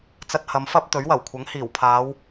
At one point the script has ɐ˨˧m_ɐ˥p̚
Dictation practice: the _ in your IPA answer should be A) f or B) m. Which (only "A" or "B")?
A